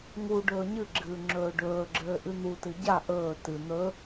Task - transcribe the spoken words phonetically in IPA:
ŋ u ɖ ɵː ɲ ɨ ɡ͡ǁ ɨː ŋ͡ǁ ɵː ɖ ɵː ɡ͡ǁ ɘː ʔ ɨ n̪ u t ɨ ɟ a ʔ ɵː t ɨ n̪ ɵ

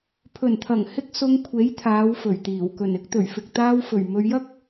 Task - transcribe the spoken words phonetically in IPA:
pʰ ɵ˨˩ n t̪ʰ ɐ˨˩ ŋ h ɪ˧ k̚ s ʊ˧ ŋ kʷʰ e˨˥ j t̪ʰ aː˨˧ w f ɵ˨˩ ɥ t̪ iː˨˩ w k ɵ˨˩ n ɪ˨˥ k̚ t̪ ɵ˨˩ ɥ f ɪ˨ k̚ t̪ aː˧ w f ɵ˨˩ ɥ m ɵ˧ ɥ j ɐ˥ k̚

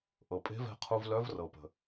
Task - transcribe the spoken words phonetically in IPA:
ʔ ɤ˩ pʼ e̤˧˥ v ɛ̤˧ qʰ u˧ v l œ˧˥ v r ɤ˩ p ə̤˩

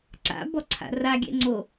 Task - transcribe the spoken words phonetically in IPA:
ǀ a̰ b ɔ ǀʰ a̰ r a ɡʲ ɛ̰ ŋ͡ǀ o

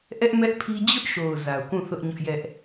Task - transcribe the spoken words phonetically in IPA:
ʔ ɛ˦ ʔ m ɛ˦ ʔ pʰ i˦ d͡ʑ ʊ˦ ʔ ʃ o˨ ʊ̯ z a˨ ʊ̯ k ũ˦˨ θ ʊ˦ ʔ ɲ ʊ˦ ʔ j ɛ˦ ʔ

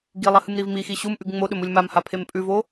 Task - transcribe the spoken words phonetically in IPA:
ɡ i lˠ ɐ h ɨ m ɾ i v m i x i ɕ u m ʔ ʉ ɡ ŋ͡m o ɗ ɵ m u lʲ m a m h a pʰ e m pʼ ʉ v o

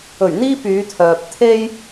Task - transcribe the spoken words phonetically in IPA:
ɵ˨˩ ɥ n̪ iː˧ p yː˨˧ t̪ʰ œː˨ p̚ t̪ʰ e˧ j

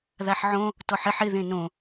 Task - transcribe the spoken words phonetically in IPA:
ð a ħ ʕ õ | t ɔ ħ ɪ ħ ɪ ð ẽ n õ

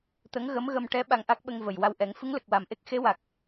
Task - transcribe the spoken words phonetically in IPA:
t̪ ə˧˥ ŋ ɣ ə˧˥ m ɣ ə˧ m ʈ ɛ˧˥ ɓ a˧ ŋ ʔ a˦˥ k̚ ɓ ə˧ ŋ v ə˨˩ j w a˧ w ʔ ɛ˨˩˦ ŋ f ɨ˧˥ ŋ l ə˨˩ k̚ w a˨˩ m ʔ e˦˥ k̚ x e˧˥ w a˨˩ k̚

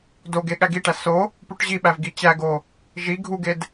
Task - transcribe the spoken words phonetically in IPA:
d o ɡ e ɠ æ ɡ i ʈ æ s o | p u ʈ ʑ i ɓ æ v ɡ i t͡ɕ æ ɡ o | ʒ i ɡʱ u ɡ e d

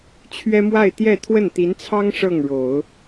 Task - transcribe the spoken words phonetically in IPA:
t͡ɕʰ ɥ ɛ˥ m w a˥˧ ɪ̯ t̪ j ɛ˥˧ t̪ʰ w ə˥˩ n t̪ i˧˥ n t͡sʰ ɑ˥ ŋ ʂ ɤ˥˩ ŋ ɻ o˨˩˦ ʊ̯

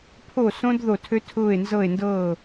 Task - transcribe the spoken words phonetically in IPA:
pʰ o˧˩ s õ˧ d ð o˧˩ tʰ ø˧ tʰ ʊː˧˩ e̯ n z ɤ˧˩ e̯ n d ɤː˧˩

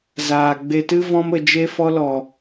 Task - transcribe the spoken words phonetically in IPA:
z aː˨ ɡ͡b e˧ t ɨ˦ v ɔ̃˦ m ə˨ d͡ʒ e˧ f ɔ˧ l ɔ˨

